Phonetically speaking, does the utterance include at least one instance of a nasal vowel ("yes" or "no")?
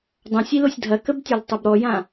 yes